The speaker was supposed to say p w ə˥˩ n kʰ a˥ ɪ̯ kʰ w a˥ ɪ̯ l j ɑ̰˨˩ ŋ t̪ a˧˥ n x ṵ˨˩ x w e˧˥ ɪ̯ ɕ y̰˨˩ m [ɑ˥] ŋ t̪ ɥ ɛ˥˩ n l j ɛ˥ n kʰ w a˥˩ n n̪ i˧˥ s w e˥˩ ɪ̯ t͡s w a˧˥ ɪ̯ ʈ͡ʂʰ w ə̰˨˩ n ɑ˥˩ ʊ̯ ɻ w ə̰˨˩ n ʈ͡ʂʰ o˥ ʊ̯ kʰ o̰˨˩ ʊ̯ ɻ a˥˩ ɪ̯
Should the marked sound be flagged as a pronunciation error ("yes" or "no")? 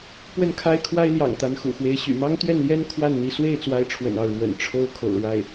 no